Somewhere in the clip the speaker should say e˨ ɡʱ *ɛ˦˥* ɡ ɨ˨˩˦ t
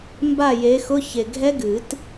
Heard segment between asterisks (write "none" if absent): ɛ˦˥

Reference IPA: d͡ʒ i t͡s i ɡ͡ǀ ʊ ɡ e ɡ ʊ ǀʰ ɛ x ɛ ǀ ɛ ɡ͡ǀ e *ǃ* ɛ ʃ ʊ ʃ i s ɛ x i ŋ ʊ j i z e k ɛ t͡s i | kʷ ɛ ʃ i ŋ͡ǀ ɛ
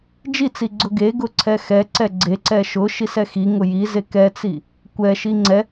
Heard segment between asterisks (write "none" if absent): ǀ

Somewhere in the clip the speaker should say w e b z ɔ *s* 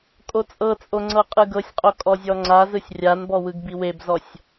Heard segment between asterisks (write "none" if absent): sʲ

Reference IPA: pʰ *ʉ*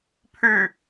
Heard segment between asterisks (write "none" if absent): ʉ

